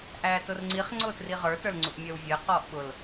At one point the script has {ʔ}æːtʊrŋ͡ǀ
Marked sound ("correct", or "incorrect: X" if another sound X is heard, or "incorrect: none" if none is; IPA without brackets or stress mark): correct